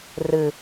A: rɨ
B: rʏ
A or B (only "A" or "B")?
A